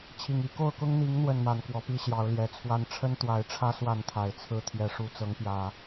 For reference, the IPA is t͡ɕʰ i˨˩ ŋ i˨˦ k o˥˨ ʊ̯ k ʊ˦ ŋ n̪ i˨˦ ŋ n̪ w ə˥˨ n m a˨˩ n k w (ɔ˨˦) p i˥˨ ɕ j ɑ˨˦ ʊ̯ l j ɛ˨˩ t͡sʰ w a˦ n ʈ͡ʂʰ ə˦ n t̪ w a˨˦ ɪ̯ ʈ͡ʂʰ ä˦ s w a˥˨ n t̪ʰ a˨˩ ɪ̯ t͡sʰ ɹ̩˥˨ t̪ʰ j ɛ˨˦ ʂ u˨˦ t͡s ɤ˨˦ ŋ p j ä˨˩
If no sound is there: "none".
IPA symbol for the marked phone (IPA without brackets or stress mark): ɔ˨˦